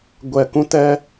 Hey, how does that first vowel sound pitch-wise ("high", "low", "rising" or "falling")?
low